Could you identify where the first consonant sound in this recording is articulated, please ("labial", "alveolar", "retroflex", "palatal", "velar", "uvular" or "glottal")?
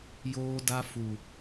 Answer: palatal